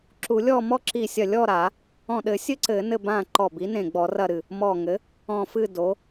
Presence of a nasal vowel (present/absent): present